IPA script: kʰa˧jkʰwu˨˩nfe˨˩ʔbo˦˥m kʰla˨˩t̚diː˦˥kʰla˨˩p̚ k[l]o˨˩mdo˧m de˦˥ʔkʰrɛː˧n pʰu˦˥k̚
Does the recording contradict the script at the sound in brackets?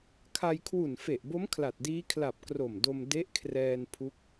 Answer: yes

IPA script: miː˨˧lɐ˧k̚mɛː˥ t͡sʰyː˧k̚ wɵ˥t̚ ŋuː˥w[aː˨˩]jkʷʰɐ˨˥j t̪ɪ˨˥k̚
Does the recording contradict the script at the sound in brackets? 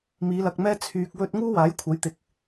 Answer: yes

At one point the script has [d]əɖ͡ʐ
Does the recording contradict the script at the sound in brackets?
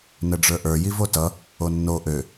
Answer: yes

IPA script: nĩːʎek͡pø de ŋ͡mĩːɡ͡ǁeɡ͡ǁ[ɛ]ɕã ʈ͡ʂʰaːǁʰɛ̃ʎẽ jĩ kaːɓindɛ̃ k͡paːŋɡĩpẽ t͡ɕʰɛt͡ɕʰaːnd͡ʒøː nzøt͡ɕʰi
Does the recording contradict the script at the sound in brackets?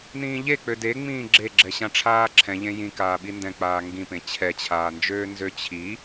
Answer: no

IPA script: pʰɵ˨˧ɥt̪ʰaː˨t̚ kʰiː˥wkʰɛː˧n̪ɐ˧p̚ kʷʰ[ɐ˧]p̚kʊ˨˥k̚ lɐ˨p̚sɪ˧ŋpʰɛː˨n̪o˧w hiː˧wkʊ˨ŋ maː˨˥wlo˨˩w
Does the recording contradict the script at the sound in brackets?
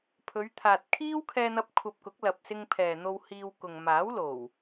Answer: no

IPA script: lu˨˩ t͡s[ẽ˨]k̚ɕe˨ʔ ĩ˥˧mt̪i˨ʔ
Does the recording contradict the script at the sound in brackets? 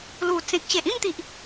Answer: no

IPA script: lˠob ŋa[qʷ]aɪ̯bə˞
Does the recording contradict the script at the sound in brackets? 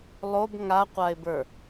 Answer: no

